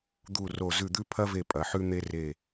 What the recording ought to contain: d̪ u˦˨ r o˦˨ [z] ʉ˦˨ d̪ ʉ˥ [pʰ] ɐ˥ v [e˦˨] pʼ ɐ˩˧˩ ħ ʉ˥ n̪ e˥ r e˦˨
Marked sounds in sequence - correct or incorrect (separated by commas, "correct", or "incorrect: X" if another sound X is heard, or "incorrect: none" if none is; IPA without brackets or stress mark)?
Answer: correct, correct, correct